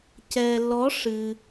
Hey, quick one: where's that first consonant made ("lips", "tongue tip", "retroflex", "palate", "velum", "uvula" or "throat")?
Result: palate